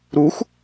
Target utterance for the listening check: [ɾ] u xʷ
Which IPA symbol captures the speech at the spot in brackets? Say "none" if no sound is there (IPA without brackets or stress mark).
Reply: ɾ